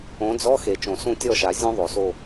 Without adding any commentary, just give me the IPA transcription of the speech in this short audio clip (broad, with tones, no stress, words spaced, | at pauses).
õ˨˥d͡zɔ˧˥˧ xe˨˩t͡ʃõ˨˩sũ˦˨ tʲɔ˦˨ʃa˨˩˦ zʲũ˦˥ðˤo˨˩so˦˨